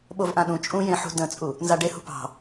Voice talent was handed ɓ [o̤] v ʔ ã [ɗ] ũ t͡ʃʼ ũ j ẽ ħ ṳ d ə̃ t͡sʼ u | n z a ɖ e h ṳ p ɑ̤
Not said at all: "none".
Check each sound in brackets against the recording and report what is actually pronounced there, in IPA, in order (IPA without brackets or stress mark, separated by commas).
o, ɗ